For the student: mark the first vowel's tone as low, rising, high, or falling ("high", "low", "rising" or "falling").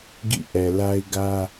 falling